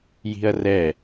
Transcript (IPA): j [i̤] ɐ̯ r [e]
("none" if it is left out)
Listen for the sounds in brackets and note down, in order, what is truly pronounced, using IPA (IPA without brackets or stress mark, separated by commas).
i̤, ɛ